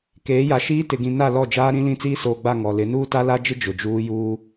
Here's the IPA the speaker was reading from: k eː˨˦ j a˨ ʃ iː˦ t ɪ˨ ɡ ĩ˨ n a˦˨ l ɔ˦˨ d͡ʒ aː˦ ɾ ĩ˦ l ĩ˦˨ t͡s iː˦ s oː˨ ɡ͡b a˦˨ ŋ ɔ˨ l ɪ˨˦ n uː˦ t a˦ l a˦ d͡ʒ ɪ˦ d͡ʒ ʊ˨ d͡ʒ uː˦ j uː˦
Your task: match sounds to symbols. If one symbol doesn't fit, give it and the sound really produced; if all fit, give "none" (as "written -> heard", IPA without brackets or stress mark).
none